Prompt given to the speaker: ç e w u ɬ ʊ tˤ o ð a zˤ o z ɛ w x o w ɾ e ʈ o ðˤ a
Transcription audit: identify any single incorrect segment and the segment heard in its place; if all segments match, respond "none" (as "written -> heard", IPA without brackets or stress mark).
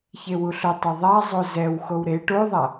ð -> ðˤ